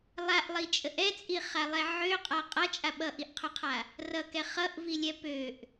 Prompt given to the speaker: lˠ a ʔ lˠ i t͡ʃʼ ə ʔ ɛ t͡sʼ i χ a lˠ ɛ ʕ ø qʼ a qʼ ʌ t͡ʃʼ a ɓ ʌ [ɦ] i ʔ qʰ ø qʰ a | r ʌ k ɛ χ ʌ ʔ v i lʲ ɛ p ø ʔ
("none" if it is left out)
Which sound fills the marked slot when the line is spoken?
ʔ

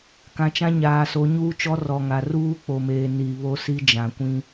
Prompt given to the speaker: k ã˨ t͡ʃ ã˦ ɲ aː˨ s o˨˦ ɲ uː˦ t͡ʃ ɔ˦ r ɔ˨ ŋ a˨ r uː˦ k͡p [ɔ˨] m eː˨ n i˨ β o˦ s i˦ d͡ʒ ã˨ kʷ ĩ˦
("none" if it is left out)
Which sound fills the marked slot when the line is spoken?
o˨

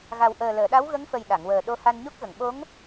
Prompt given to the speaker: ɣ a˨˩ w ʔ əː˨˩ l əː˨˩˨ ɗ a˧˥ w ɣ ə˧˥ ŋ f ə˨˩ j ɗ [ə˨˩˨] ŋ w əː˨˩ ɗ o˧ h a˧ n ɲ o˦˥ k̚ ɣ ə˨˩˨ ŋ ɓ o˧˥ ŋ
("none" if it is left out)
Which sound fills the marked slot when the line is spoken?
a˨˩˨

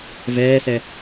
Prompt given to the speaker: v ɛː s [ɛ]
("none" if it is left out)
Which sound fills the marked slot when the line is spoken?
ɛ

